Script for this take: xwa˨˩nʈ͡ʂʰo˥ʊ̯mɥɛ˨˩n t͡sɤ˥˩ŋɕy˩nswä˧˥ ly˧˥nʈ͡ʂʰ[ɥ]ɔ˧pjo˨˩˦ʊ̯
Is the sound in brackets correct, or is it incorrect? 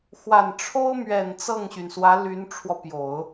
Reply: incorrect